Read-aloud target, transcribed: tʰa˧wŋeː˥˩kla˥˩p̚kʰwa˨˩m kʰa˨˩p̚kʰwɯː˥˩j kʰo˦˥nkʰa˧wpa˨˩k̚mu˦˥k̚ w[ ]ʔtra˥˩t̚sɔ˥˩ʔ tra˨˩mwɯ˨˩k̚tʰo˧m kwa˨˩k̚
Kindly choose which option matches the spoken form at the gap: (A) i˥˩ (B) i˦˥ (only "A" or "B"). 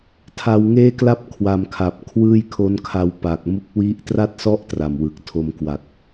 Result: B